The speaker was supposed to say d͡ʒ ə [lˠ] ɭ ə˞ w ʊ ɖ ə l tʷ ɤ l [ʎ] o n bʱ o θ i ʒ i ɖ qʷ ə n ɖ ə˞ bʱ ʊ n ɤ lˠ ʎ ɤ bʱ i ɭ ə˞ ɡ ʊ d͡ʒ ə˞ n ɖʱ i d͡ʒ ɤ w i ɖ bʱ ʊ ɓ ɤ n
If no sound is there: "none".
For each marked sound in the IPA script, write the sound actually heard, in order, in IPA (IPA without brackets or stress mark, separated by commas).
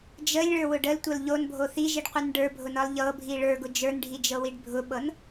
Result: lʲ, ʎ